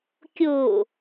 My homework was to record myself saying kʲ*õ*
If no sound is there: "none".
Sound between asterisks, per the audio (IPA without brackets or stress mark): o